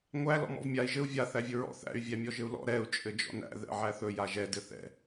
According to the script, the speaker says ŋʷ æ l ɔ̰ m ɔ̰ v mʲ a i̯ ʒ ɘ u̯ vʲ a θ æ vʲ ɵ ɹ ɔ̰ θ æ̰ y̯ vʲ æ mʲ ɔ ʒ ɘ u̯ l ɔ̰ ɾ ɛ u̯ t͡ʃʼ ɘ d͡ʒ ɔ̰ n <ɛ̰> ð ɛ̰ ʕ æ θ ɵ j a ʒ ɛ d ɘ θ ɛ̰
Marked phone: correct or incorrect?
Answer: incorrect